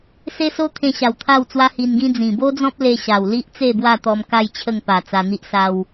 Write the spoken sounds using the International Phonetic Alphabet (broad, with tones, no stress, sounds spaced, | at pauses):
s e˦ s o˦ t̪ʰ ẽ˧ ɕ a˨˩ w t̪ʰ a˥˧ w t͡s w a˦ h i˧ n ɡ ĩ˦ d͡z ĩ˨˩ b o˦ d͡z ɔ̃˦ p̚ l e˧ ɕ a˨˩ w l i˦ ʔ t͡s e˥˧ b w a˥˧ t̪ ɔ˧ m k a˥˧ j t͡ɕʰ ə˥˧ ŋ p a˨˩ t͡s a˧ n̪ i˦ ʔ s a˦ w